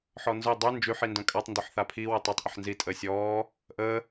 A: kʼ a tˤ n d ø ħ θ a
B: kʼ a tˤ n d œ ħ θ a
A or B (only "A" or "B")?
A